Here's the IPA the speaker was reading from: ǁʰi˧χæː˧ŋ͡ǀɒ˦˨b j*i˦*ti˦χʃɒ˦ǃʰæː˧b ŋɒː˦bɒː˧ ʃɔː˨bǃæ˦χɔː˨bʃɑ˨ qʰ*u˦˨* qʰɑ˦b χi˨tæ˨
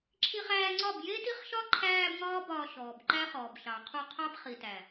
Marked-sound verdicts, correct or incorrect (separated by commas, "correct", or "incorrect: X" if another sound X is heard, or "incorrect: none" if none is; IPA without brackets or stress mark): incorrect: e˦, correct